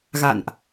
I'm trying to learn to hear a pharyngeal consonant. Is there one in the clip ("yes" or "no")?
no